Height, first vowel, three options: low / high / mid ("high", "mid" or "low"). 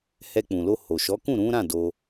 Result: mid